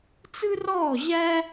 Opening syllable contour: high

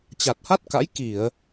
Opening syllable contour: low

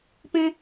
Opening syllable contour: high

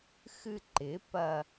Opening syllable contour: falling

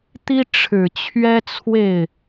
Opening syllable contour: high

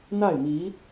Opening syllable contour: falling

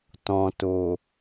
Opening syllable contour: low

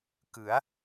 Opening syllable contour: rising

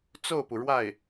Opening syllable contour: falling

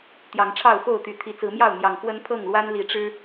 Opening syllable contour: rising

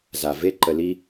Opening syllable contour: low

